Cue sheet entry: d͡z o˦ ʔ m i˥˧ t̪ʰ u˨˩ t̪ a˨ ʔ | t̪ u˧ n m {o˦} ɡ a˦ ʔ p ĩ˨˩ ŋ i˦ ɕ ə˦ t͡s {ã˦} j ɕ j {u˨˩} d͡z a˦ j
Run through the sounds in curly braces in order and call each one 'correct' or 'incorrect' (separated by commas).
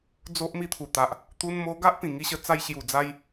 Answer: incorrect, incorrect, correct